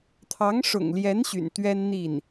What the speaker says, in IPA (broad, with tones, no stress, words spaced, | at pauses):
t̪ʰɑ˧˥ŋʂʊ̰˨˩ŋljɛ˧˥n ɕy̰˨˩nt̪ɥɛ˥n n̪i˥˩n